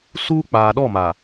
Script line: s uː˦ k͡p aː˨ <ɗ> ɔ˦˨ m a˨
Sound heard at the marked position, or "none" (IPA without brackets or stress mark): ɗ